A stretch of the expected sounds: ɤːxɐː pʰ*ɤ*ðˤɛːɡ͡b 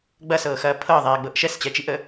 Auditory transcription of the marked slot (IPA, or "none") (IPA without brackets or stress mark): ɤ